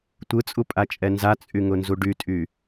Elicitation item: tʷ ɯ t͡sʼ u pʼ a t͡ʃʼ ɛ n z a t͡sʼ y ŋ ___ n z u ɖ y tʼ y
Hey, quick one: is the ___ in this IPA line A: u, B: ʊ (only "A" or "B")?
B